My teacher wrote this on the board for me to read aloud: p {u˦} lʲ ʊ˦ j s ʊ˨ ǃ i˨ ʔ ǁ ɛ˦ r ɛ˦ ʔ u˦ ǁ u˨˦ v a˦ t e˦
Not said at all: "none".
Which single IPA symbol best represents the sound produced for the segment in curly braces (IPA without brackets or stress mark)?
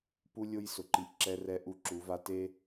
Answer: u˦